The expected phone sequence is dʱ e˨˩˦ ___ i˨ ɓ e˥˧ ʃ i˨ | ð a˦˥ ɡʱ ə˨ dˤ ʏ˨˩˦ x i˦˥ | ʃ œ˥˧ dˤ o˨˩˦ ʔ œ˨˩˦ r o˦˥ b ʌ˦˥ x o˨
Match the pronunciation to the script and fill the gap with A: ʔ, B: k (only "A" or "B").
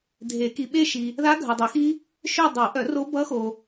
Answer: B